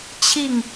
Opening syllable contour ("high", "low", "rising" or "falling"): falling